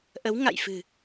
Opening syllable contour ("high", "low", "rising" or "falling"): rising